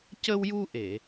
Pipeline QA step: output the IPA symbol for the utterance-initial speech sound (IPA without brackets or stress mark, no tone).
c